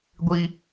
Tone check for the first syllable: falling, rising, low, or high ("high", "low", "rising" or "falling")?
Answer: high